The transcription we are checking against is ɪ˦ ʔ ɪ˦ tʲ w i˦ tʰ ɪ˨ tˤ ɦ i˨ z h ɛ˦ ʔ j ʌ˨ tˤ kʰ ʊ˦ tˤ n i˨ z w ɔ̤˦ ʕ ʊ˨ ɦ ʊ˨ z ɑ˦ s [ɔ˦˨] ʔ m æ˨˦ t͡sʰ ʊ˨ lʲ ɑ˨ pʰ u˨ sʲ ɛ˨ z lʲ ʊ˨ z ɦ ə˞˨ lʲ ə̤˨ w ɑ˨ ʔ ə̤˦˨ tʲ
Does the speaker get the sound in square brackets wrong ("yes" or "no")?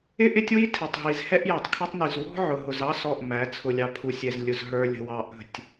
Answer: no